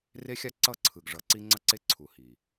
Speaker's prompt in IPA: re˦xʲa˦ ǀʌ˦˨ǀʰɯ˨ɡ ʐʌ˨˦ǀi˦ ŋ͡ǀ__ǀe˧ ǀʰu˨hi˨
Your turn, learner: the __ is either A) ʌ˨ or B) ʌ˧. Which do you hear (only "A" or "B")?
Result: B